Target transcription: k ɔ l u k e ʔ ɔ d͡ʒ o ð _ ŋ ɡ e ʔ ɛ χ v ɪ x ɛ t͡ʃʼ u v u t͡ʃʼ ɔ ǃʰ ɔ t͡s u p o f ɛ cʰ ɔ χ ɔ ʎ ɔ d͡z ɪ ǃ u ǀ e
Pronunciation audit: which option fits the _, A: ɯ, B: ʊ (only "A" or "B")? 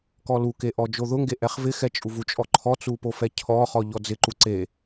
B